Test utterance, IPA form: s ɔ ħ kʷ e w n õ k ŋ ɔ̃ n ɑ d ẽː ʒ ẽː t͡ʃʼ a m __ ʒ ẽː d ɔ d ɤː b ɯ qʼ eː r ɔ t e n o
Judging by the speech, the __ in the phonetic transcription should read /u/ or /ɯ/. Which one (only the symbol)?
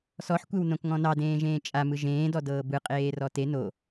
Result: ɯ